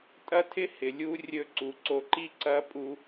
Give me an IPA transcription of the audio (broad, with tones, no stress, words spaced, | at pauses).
tʼɐ˥tʰɪ˥hɪ˩ lʲu˧rʲɵ˧ ǀu˩ǀo˧ ǃi˥ǀɐ˥ pʼu˥